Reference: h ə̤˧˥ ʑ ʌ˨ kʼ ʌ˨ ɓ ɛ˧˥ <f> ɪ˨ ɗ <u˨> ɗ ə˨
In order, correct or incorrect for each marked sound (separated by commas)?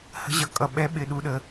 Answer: incorrect, correct